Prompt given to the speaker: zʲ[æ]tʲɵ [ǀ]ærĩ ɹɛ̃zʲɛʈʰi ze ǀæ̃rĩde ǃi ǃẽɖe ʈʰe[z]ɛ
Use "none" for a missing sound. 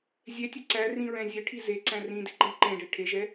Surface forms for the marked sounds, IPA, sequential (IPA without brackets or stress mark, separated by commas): ɛ, ǀ, ʒ